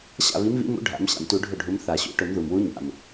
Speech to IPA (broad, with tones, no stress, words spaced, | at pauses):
ɕa̰˥˩βi˨˥mβḭ˨˥mṵ˨˥ ɖʱa̰˨˩˦mɕa̰˩mtu˨˩˦ ɖʱʊ˥˩ɖʱu˨˥m θa˨˩˦ɕṵ˨˩˦ ʈʊ˨˩˦mðu˩mwu˨˥ ɲa̰˩m